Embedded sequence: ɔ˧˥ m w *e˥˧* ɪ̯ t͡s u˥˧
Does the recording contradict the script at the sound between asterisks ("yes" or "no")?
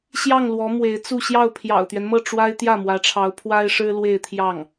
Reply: yes